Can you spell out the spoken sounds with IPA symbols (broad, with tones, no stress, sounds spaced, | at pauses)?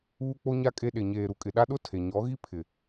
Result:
uː˦ k͡p o˦ ɲ a˦ kʼ e˦ ɗ e˨ ɲ eː˨ ɾ u˨ kʼ ɪ˨ ɗ a˦ ɗ ʊ˦ tʰ e˨ ɲ ɔ˨˦ ɣ i˦ pʰ ɪ˨